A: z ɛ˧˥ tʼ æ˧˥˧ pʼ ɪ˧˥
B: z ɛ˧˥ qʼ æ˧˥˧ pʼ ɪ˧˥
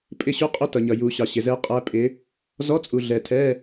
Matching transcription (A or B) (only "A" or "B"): B